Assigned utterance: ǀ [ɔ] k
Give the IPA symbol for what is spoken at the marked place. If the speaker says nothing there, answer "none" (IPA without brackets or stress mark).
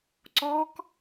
ɔ